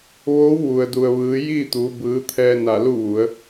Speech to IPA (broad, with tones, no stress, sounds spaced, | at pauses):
ʋ oː˧˥ w ʋ u˩ ə̯ d u˩ ə̯ ʋ ɯː˩˧ j iː˥˨ t̪ uː˩˧ b ɯː˩˧ t̪ʰ ɛː˧ n a˧˩ l u˥˨ ʋ u˩˧ ə̯